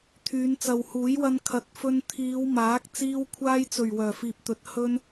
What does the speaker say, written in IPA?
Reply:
t̪ʰ yː˨˧ n t͡s ɐ˨ w h uː˨˥ j w ɐ˧ n kʰ ɐ˨˥ t̚ f ɵ˧ n t̪ʰ iː˨˧ w m aː˨˥ k̚ t͡s iː˧ w kʷʰ aː˧ j t͡s ɵ˨˩ ɥ w œː˨˩ f iː˨ p̚ t̪ ɵ˨˥ t̚ h ɵ˧ n

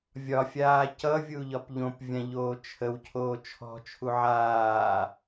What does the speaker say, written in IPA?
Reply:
vʲ ɒ fʲ aː c ʌ vʲ u ʎ ɒ p ʎ õ p vʲ ã ʎ oː t͡ʃʰ ə w cʰ oː t͡ʃʰ ɔ̤ t͡ʃʰ u ʕ aː

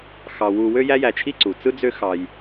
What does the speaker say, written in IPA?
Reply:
x ɑ˧ w u˧ w ø˦ j æ˦ j æ˧ t͡ʃʰ i˦ ǀ u˨ t͡s ɯ˦ d͡z ø˦ x ɑ˧ j

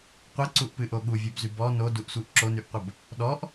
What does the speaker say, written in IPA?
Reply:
qʷ ɛ ǀ u ʔ p ɨ ʔ o ɠ u vʲ ɛ b z y b ɔ n o d u ʔ sʷ ɨ ʔ ǁ o n y ʔ qʷ ə b | ɗ ɔ ʔ

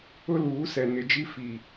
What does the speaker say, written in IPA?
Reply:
ʊ˦ l uː˨˦ s ɛ˨ n ɪ˨ d͡ʒ i˦ f i˨

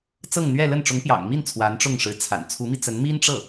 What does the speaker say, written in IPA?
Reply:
t͡s ɤ˥˧ ŋ n̪ ɥ ɛ˥˧ l ə˥˩ n ʈ͡ʂ ʊ˧˥ ŋ p j ɑ̰˨˩ ŋ m i˥˩ n t͡sʰ w a˧˥ n ʈ͡ʂ ʊ˥˩ ŋ ʂ ɻ̩˧˥ t͡sʰ a̰˨˩ n t͡sʰ u˧˥ m i˧ t͡s ə˧˥ n m i˥ n ʈ͡ʂ ɤ˥˩

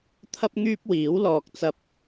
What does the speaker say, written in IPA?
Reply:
t̪ʰ ɐ˥ p̚ ŋ yː˥ p̚ w iː˨˥ w l ɔː˧ k̚ t͡s ɐ˥ p̚

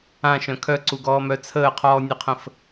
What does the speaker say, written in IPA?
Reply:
ã ʃ œ̃ kʰ œ ǀ u ɡ ɔː m œ t͡sʰ əː qʰ ɔː nʲ ɵ qʰ ə̃ f

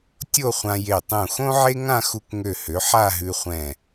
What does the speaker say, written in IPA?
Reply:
tʲ o˥˧ χʷ ã˧ j e˧˩ tˤ ũ˧˩ x õ˥ ʕ e˥ ŋ ã˥˧ x u˧ k ŋ ø˧˩ h ø˩˧ ħ a˥˧ ɦ ʉ˧ χʷ ɛ̃˧˩

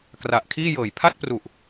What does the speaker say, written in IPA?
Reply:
k r a˨˩ ʔ kʰ iː˥˩ j ɤː˨˩ j pʰ a˥˩ t̚ p r u˨˩ ʔ

